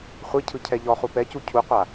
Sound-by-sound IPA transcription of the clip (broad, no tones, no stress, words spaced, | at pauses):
χʷicʰɯ cʰɛʎɔχu pɛcu cʰuqʷa